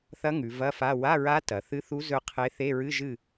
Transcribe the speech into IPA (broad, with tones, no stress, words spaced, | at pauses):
θɐ˧˥ŋʉ˩˧ vɐ˧˥˧fa˧˥˧ wa˧˥˧ɹa˧˥ tɐ˩˧ θɨ˧˥θu˧˥ zɵ˧˥qʰe˧˥θe˧˥˧ ɹɨ˧˥˧ʒɨ˦˨